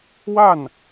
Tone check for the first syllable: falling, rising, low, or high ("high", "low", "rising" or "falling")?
falling